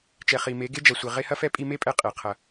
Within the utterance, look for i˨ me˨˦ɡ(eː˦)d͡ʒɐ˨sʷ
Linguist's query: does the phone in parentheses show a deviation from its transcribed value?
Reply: yes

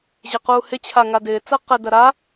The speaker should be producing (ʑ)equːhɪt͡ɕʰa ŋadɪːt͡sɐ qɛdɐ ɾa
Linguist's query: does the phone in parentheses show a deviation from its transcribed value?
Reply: no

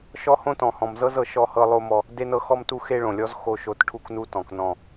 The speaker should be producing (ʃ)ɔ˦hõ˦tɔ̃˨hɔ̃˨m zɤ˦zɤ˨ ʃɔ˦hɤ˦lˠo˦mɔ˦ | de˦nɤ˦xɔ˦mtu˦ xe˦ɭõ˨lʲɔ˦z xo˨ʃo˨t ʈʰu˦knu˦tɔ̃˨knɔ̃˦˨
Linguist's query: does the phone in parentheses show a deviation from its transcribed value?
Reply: no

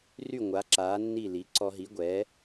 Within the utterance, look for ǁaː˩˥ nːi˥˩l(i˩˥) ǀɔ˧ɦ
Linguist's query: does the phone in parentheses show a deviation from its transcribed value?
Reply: no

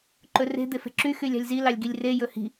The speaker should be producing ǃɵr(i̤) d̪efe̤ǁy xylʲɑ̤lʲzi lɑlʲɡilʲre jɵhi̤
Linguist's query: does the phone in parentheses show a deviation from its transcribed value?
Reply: yes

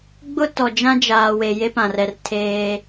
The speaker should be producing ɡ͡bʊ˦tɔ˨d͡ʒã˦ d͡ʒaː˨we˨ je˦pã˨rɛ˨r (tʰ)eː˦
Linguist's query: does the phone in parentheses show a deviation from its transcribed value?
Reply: no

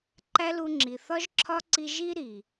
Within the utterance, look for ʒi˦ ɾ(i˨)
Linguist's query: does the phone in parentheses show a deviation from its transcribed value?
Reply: no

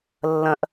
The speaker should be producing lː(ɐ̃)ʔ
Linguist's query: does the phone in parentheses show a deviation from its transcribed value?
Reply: no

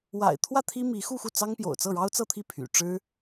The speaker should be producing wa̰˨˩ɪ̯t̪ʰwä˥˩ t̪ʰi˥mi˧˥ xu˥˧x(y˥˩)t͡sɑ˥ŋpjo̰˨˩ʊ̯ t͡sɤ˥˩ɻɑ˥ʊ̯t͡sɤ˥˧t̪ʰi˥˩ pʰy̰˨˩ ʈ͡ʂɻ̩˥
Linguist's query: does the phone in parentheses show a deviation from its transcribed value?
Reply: yes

